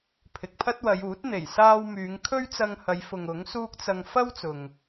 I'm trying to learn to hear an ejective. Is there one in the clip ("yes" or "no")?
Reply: no